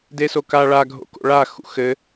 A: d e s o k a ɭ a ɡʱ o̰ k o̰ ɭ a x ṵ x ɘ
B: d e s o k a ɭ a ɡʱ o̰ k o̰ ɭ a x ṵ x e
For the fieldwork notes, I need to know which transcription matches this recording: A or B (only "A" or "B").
A